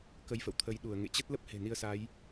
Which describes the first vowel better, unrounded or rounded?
unrounded